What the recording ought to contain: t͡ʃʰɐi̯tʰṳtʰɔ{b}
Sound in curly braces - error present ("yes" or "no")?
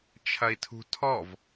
yes